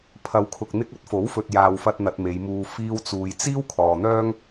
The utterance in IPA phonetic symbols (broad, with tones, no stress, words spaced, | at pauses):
pʰɐ˨wkʰʊ˨k̚ n̪ɪ˧k̚ɐ˨˥t̚fo˨˥wfɵ˨t̚ jaː˨wfɐ˧t̚ n̪ɐ˧t̚me˨˧jmuː˧ fiː˧wt͡suː˨j t͡siː˥wkʰɔː˨n̪œː˥ŋ